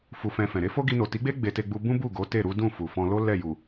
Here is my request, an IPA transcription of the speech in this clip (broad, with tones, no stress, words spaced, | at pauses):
fu˧fɛ̃˧fɛ̃˨ ɾe˨˦fo˦ ɡi˧no˨ti˨˦ɡ͡be˦ ɡ͡be˧te˧ɡ͡bu˧ bũ˦ bu˦˨ ɡo˨˦te˦˨ɾu˨˦ dũ˦˨fu˨fɔ̃˧lo˦ lɛ˦˨ju˨